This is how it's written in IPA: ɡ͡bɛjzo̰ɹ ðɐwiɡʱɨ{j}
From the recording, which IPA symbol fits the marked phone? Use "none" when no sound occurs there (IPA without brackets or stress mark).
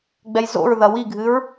ɹ